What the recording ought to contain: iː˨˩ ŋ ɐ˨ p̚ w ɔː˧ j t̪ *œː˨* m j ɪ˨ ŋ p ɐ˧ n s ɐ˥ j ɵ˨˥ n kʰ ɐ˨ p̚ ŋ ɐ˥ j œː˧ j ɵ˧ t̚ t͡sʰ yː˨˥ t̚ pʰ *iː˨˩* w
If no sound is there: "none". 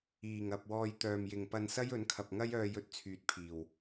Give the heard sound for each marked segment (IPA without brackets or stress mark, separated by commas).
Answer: œː˨, iː˨˩